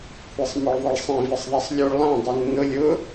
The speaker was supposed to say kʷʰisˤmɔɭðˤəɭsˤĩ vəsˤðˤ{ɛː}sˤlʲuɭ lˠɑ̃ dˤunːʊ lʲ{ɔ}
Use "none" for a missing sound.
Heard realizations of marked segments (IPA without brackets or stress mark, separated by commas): ɛ, ʊ